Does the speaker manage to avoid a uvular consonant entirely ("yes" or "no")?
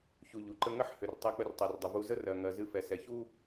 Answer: yes